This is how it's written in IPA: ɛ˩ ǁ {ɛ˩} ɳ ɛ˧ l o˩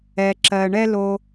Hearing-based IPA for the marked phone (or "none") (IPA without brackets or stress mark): ɜ˩